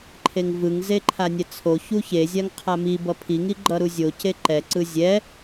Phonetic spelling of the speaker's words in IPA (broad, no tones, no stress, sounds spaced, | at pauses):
ǃʰ e ŋ v ɯ ŋ z e ǃʰ a nʲ ɛ t͡sʰ o ç u ç e zʲ a ŋ qʰ a m i b ʌ pʰ i ŋ i ɡ͡ǃ ʌ ɾ u zʲ o c e ǃ ɛ ǀ ɯ zʲ ɛ